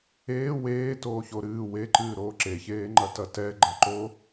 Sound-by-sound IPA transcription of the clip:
eː weːtoːço ɾɨː weǃɨːɾoː ǁeçeːŋ͡ǃɐtɐ tɛɡ͡ǃɐǃo

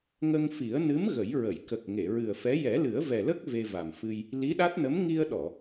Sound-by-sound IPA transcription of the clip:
ŋə˧ŋfi˨˩˦ə̯ nɨ˧˥m ɣə˨˩˦jɹə˨˩˨j kə˨˩k̚ ŋe˨˩˨ɹɨ˨˩ə̯fɛ˧˥ jɛ˨˩˦lɨ˨˩˦ə̯vɛ˨˩lə˦˥k̚ ve˧va˨˩mfɨ˧j | li˧˥ɗa˦˥t̚nə˧˥m ŋi˧ə̯ɗɔ˨˩˨

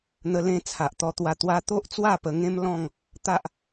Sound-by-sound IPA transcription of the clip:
n̪ə˧lẽ˧ t͡sʰa˨ʔt̪ɔ˧t̪wa˧ t̪wa˦ t̪o˦ʔt͡swa˥˧pə˧ŋẽ˦m lɔ̃˥˧ŋ | t̪a˦ʔ

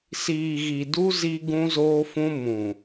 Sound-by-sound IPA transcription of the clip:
siː˨ɣi˨du˦ zi˦ ɡũ˦zoː˦fũ˦ mũ˨

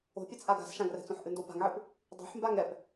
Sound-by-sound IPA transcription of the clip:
o̤pʲɛt͡sʔa ɡa̤sʃãɡrɛ̤t͡sõħ ʔɨndopa̤ŋʕɨp | dˤo̤ħmbaŋ ɛp

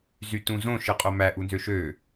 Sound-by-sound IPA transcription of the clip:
zytũzõ ʃɯqʼomæ ʔunzøʃø

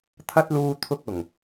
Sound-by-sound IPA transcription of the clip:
t̪ʰɐ˥t̚luː˧ t̪ʰʊ˧k̚ʊ˨˩ŋ

